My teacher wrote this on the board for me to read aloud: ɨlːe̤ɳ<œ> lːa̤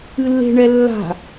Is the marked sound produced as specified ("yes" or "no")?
no